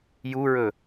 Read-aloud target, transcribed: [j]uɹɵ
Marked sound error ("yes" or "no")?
no